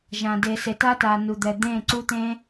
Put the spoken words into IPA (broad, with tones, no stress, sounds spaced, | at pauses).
ʒ ã˨ d e˨ s e˨ t a˦ t a˨ n u˨ d̪ ɛ˨ d̪ ẽ˦˨ ǀ u˦ t̪ ẽ˦